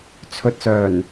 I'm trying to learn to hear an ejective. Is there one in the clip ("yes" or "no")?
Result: no